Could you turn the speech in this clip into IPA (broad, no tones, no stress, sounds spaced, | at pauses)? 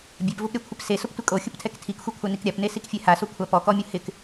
bʲ e p v ʊ p ɾʲ ɔ kʷʰ ɪ p s e s ʊ p tʷ ɪ kʼ o xʲ ʊ p tʰ ɛ k tʰ i k xʷ e kʷʰ a n i k ɾʲ a p n e s i k fʲ e h a s o kʷʰ a p ɔ k ɔ mʲ ʊ h ɪ k